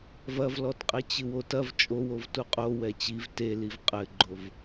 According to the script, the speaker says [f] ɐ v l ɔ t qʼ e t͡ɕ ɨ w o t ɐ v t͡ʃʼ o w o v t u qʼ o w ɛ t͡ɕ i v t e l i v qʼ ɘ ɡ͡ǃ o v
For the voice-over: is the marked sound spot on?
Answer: no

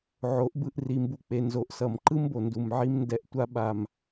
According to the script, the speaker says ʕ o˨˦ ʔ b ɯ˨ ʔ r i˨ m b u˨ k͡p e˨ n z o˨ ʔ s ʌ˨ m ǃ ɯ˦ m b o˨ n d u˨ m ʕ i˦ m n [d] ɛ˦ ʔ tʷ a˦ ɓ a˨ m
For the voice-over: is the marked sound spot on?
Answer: yes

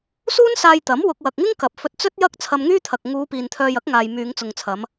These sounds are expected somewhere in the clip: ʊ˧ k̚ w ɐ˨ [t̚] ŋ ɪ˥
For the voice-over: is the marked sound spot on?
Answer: no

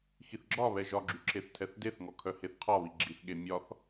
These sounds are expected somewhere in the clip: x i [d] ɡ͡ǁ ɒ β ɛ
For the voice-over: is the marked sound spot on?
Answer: no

